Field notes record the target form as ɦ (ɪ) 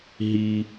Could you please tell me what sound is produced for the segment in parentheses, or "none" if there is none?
i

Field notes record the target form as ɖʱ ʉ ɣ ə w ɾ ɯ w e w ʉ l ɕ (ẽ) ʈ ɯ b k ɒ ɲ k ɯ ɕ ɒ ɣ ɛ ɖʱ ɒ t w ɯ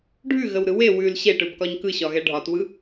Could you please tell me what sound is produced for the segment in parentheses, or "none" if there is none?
e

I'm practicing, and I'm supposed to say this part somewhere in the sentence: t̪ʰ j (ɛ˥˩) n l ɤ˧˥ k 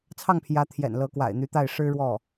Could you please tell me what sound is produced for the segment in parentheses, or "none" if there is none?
ɛ̰˨˩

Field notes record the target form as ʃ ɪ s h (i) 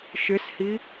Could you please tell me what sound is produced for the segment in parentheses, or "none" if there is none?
i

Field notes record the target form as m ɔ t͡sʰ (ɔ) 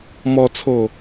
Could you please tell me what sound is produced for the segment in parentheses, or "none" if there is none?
o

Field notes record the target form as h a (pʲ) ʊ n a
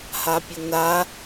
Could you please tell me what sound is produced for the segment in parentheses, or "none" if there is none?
pʲ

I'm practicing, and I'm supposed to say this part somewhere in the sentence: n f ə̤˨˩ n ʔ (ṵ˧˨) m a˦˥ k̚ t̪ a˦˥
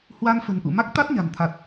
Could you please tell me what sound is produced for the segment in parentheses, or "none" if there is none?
ṵ˧˨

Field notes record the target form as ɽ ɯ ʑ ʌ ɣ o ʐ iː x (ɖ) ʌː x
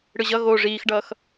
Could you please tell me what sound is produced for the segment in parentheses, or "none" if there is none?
ɖ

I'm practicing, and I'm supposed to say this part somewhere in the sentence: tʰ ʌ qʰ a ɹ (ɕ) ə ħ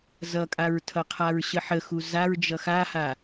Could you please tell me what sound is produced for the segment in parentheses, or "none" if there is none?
ɕ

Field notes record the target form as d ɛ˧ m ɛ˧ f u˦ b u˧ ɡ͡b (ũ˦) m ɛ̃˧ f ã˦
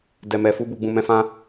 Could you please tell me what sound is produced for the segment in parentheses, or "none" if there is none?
ũ˧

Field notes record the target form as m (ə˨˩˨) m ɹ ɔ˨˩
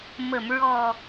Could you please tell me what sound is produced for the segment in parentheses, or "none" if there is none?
ə˨˩˨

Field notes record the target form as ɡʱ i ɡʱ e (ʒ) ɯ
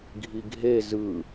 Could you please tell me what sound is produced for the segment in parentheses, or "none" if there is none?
z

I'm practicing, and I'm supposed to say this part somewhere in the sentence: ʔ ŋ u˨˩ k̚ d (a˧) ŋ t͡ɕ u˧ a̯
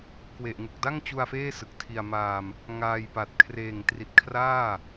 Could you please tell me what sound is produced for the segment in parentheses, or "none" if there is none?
a˥˩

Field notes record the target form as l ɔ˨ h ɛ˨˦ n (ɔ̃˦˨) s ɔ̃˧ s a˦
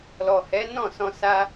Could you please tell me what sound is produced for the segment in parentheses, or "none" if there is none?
ɔ̃˦˨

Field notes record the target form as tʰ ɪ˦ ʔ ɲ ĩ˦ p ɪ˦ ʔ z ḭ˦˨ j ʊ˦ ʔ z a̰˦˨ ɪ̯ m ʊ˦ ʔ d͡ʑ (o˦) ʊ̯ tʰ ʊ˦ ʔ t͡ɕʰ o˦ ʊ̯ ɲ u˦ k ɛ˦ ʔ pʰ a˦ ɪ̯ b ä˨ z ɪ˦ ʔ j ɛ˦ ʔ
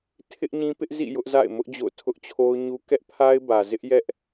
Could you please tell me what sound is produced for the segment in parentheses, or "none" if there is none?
o̰˦˨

